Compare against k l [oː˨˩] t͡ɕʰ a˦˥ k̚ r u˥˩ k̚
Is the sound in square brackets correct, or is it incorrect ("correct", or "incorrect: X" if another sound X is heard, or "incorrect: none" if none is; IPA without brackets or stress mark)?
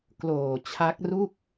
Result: correct